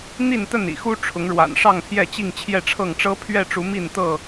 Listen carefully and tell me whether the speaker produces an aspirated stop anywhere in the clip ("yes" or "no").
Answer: yes